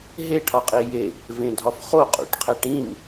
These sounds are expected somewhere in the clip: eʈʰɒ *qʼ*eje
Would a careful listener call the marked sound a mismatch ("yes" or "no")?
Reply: no